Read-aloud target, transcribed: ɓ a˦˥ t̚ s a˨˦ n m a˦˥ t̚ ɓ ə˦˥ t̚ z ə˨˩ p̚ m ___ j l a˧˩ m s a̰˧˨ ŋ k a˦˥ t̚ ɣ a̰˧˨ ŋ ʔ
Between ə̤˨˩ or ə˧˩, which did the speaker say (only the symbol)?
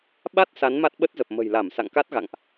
ə̤˨˩